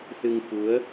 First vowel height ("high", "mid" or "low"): high